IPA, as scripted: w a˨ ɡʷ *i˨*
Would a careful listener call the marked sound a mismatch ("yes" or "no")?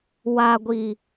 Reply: no